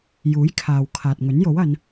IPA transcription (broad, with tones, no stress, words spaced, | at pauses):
juː˨˥jkʰaː˨w kʰaː˨t̚ŋɵ˨˥njo˨˥wɐ˨˧n